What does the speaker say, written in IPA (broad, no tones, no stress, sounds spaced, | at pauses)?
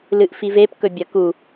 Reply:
l ɨ ʔ f i v e p k ɵ bʲ ɐ k u